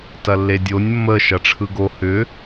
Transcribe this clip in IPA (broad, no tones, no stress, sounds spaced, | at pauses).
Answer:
t ɐ lː e dʲ o nʲ mː ə ʃ ɐ ʈ͡ʂʰ ɯ ɡ o h ʏ